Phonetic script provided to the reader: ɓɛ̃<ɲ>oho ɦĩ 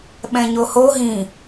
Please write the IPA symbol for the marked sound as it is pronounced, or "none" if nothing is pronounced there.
ɲ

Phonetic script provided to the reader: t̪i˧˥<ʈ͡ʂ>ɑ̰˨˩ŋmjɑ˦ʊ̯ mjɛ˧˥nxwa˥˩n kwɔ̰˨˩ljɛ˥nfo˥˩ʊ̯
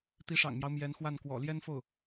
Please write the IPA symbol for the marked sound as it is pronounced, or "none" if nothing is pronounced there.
ʂ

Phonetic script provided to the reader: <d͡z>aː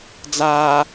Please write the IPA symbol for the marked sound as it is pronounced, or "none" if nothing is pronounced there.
d͡z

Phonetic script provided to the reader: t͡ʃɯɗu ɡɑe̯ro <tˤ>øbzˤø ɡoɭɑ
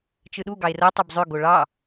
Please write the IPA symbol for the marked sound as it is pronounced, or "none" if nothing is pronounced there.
tˤ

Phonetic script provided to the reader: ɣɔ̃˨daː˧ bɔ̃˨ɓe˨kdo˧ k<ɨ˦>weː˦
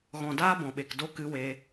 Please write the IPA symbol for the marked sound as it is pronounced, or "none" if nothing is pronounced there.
ɨ˦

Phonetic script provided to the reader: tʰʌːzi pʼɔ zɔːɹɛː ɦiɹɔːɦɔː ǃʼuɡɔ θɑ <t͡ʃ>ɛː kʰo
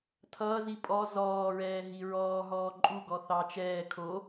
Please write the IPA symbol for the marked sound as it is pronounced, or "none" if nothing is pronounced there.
t͡ʃ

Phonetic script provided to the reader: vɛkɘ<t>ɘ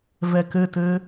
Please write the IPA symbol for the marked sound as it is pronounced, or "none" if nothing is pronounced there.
t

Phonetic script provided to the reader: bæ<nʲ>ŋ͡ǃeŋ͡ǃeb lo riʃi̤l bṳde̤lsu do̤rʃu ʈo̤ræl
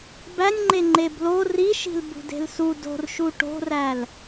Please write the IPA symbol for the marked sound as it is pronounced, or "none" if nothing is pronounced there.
nʲ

